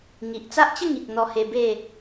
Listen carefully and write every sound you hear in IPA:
ŋi˨ʔt͡sa˦ʔt͡ɕə˥˧ŋi˨k̚ n̪ɔ˧he˧be˥˧

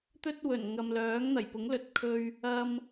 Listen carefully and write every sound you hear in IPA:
t̪ɵ˥t̚wɵ˨˩n ŋɐ˨mlœː˨˥ŋn̪ɐ˨˩jpʊ˨˥ŋ lɵ˨t̚kʰɵ˧ɥ | ɐ˧m

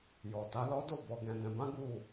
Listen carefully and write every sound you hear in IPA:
jɔ˨ta˨˦lɔ˦ do˦˨bɔ˨ɡɛ̃˨ dɛ̃˨bã˨˦ ɡu˦˨

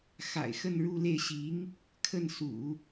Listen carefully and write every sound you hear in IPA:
xa̰˨˩ɪ̯xə˥˧nɻu˥˧le˥˩ɪ̯ ɕi˧˥ŋ | kʰə˥˩n sṵ˨˩˦

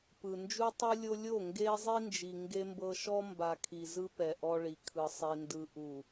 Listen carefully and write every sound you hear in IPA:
pɯ˨ nd͡ʒu˦tˤɯ˦lʲo˦ lʲo˦˨ŋɡe˦ zˤi˦nd͡ʒi˨ ŋɡe˦mbɤ˦ ʃɔ˦mba˨kʰi˨ zɯ˦pɛ˨ ʔɔ˦ɭi˨kʰɯ˨ sˤi˨ndɯ˨ʔu˨

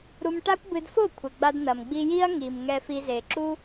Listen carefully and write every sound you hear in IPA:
ɾu˧mʈa˦kʷbɨ˧dfo˦˨ kʷʰɘ˨ɡ͡ba˧d n̪ɐ˨m ɡ͡bi˧ji˦ɐ̯ŋi˨m ŋɛ˧fi˧ ze˨ǁu˦

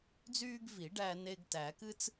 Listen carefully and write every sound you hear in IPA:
d͡zyː˦ɡvi˨˩˦ ɖæ˦ne˦ɡ tæ˨˩˦kɨ˦t͡s

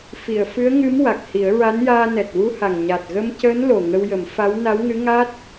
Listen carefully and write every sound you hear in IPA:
fi˨˩˨ə̯fɨ˧˥ə̯ŋɨ˧˥m wa˨˩k̚hi˨˩˦ə̯ɹa˧˥njaː˧ nɛ˨˩t̚wu˧ha˨˩ŋ ɲa˨˩t̚ɣə˧mcəː˧˥n lo˨˩ŋə˧wjə˨˩˦mfa˧˥w na˧˥wŋɨ˧˥ ŋa˦˥t̚

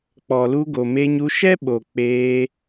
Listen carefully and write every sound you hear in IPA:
k͡pɔ˨lu˧ ɡo˨me˧ɲu˧ ʃɛ˦ɓo˨ k͡peː˧

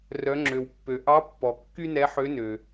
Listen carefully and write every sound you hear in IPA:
rœ˩˧ŋ͡ǁø˩wpːø˩ ʔɑ˧˥pːɔ˩ kːy˥nɛ˧˥ħø˧˥nø˩

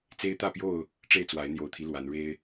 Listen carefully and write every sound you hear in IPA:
t͡se˦ɪ̯t̪ä˥˨pjo˥˨ʊ̯ | ʈ͡ʂe˥˨ɪ̯t͡swa˨˦ɪ̯ n̪jo˨˩ʊ̯t̪ʰi˦ lwa˨˦nɻe˦ɪ̯

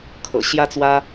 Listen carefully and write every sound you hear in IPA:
kʰɤ̰˨˩ ɕjä˥t͡swä˥

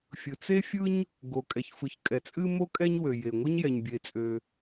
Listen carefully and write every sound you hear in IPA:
fʲɯ˩t͡se˥ fʲɯ˥ɲ | ɡo˩kʼɛ˩çfɯ˩ç kʼɛ˩t͡sʼɨ˥mo˥ kʼɛ˥ɲ wø˩je˩ŋʷɨ˥ɲ jɛ˩ɲbʲe˩t͡sʼø˩

